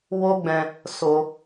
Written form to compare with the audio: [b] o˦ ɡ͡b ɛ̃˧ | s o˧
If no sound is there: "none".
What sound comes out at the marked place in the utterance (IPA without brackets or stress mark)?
w